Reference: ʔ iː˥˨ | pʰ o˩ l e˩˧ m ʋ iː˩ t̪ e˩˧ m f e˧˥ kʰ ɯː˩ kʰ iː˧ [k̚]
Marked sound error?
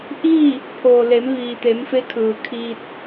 yes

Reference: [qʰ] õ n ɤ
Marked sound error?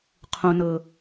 no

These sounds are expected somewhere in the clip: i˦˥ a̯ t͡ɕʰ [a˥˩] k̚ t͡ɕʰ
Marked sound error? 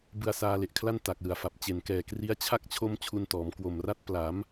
no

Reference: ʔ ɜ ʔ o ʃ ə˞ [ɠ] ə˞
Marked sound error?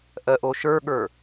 no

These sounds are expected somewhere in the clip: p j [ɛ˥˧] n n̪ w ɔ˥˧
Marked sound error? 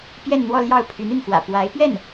no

